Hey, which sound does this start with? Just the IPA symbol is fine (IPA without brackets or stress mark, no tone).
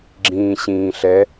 ɡ͡ǁ